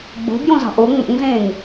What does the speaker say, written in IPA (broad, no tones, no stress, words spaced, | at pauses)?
ɡ͡bo̤bjõ zɑ̤ʔo ŋ͡mo̰ŋzẽːŋ